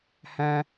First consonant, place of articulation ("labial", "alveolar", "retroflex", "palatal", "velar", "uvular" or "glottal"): glottal